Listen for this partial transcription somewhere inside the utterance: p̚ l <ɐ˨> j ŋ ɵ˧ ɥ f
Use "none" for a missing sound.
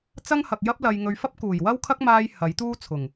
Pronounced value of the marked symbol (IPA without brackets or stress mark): ɐ˧